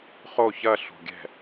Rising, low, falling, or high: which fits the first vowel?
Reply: falling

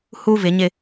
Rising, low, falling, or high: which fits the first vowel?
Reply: high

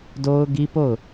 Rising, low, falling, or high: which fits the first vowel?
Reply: high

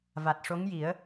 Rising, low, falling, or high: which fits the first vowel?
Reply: low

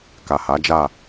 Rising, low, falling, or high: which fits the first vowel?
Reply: low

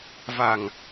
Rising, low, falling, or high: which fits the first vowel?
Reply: low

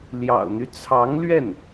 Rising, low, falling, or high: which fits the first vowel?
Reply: low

